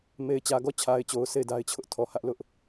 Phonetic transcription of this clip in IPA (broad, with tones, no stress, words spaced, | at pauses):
me˨ɪ̯ t͡ɕä˨ɡɔ˦˨t͡ɕʰa˨ɪ̯t͡ɕo˨ʊ̯ se˦˨ɪ̯da˦ɪ̯t͡ɕʰʊ˦ʔ tʰɔ˨hä˦ʔlʊ˦ʔ